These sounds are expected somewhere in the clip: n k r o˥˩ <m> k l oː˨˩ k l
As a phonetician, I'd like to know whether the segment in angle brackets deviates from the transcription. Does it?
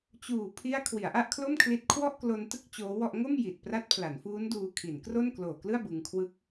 yes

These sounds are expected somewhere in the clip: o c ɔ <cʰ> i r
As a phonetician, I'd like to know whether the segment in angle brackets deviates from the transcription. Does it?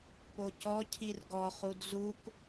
no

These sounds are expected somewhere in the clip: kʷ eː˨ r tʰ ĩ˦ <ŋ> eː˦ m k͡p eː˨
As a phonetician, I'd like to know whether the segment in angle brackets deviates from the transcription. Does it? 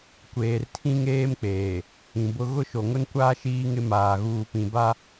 no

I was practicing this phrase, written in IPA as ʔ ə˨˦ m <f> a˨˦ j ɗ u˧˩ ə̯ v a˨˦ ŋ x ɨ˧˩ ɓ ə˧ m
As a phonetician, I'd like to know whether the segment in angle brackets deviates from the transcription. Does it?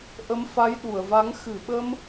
no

